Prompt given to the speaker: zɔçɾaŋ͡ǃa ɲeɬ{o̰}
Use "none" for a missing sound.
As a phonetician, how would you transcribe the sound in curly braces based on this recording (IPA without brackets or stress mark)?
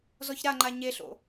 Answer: o̰